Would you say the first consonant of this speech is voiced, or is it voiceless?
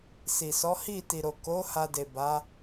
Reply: voiceless